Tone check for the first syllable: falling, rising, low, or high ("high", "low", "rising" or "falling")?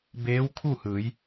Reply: rising